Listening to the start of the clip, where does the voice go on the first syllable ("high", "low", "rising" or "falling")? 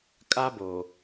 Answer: high